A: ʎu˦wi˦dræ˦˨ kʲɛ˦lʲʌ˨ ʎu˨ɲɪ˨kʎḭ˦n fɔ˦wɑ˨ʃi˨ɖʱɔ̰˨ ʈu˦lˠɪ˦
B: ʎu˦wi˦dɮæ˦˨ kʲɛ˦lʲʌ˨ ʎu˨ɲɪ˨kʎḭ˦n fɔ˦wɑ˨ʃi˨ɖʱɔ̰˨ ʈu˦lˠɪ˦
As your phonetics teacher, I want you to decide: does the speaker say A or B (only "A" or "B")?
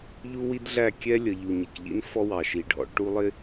B